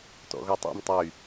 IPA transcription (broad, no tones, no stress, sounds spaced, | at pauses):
t ɔ̰ ɣ ɔ tˤ ɛ̰ m tˤ y